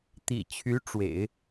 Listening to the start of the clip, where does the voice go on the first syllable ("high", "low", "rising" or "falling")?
low